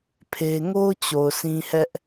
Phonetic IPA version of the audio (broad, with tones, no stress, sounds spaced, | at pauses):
pʰ e˦ ŋ o˦ ʊ̯ t͡ɕ o˨ ʊ̯ sʰ ĩ˦ h ɛ˦ ʔ